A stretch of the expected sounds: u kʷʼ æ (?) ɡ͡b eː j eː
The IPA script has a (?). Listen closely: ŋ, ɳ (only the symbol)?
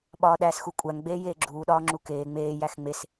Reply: ŋ